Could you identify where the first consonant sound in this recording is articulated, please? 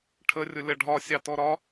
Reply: retroflex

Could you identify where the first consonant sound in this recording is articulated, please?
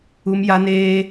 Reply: labial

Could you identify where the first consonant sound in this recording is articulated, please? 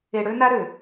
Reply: retroflex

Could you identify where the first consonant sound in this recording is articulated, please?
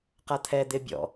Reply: uvular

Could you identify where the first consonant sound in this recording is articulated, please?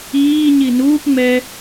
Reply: palatal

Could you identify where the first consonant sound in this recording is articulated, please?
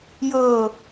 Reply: palatal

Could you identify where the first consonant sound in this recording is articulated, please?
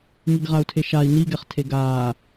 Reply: velar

